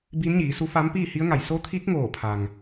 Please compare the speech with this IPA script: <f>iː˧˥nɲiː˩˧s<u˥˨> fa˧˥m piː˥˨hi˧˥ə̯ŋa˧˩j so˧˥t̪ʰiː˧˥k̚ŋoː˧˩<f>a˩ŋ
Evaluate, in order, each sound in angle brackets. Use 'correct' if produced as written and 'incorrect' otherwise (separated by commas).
incorrect, incorrect, incorrect